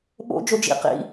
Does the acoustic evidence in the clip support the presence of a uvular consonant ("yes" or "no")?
yes